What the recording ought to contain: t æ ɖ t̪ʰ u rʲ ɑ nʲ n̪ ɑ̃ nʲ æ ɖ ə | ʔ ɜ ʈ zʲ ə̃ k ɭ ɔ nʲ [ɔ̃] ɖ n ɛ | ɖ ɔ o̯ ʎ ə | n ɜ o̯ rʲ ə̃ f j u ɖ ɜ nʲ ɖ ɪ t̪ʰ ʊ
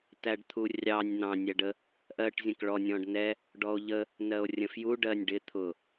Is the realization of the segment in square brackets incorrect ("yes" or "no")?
no